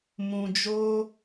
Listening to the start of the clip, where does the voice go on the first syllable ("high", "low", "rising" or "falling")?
low